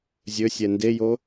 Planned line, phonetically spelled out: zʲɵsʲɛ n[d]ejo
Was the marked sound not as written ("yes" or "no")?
no